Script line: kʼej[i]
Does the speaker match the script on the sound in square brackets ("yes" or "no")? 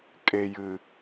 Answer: no